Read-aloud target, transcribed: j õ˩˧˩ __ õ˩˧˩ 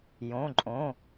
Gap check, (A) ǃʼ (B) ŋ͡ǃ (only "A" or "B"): A